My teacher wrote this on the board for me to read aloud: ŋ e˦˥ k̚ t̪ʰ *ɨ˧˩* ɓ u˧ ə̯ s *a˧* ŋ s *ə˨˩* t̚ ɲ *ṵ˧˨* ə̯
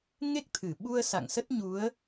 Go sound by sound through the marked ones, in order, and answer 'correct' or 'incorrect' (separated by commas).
correct, incorrect, incorrect, incorrect